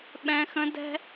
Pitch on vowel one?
high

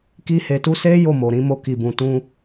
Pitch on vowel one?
high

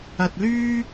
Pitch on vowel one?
low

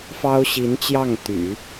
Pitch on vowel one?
high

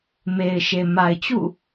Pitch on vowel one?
low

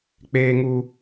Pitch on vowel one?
high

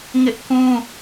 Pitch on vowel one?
high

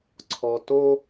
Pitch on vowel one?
low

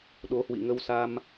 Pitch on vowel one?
rising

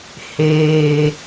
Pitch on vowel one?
low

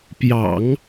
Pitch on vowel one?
low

